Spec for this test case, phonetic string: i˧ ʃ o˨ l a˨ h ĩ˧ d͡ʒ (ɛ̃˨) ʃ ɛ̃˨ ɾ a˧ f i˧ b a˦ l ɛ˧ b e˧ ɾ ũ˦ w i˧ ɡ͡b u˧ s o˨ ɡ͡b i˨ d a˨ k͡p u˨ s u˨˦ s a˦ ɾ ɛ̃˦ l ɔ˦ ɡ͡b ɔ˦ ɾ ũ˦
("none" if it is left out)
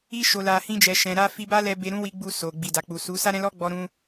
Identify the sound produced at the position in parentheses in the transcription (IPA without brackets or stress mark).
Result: ɛ˨